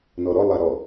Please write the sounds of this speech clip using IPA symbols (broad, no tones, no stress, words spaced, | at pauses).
nɔɾɔ lˠaɾɔ